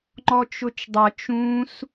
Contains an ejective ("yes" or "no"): no